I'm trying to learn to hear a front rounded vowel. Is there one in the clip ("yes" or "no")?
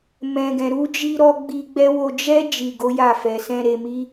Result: no